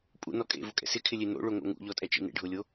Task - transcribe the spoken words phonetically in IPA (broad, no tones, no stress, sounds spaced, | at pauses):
pʼ ṵ n ɔ kʼ ḛ v ʊ kʼ ɛ̰ s ɪ kʰ ɪ lʲ e n o̰ ɭ o ŋ o̰ ŋ ṵ ʎ ɔ tʼ ɛ t͡ʃ ḭ n ḛ ɖʱ ʊ lʲ o